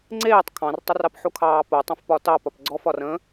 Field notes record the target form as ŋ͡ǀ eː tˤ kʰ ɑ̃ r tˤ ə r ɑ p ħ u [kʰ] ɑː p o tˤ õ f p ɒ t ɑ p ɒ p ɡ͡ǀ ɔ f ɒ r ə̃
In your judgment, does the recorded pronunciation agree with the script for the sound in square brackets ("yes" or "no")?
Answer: yes